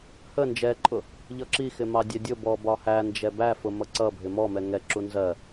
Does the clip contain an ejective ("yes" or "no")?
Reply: yes